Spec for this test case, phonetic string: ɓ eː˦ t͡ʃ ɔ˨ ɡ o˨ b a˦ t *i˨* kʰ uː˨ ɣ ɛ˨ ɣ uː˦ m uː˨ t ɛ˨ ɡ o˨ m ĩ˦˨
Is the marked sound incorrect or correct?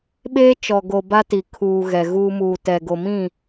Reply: correct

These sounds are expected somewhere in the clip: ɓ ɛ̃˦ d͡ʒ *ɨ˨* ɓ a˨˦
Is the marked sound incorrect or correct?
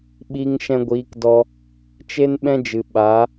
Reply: correct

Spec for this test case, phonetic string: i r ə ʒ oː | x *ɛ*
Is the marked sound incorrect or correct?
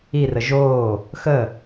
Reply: incorrect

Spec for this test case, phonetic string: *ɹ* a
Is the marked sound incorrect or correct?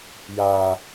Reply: incorrect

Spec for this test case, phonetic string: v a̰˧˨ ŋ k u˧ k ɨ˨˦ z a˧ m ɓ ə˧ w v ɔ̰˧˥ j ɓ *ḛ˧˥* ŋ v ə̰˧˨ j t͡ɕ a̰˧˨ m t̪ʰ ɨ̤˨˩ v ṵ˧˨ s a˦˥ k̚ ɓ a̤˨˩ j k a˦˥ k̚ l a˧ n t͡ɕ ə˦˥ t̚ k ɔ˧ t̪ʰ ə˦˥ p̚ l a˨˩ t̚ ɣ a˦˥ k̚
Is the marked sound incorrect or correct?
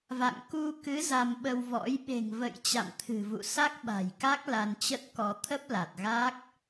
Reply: incorrect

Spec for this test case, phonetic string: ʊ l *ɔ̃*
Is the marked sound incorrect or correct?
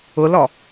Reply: incorrect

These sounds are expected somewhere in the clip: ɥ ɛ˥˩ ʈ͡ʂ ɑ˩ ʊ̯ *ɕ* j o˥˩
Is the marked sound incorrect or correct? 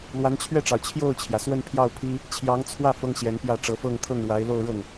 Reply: incorrect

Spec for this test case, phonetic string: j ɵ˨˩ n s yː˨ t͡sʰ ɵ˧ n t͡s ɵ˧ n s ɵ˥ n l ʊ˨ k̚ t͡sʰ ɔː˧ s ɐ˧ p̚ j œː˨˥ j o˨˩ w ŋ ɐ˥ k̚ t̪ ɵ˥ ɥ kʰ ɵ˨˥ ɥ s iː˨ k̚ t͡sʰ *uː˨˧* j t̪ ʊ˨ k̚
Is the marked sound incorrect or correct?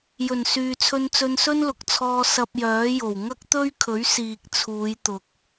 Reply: correct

